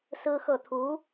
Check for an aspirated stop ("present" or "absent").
present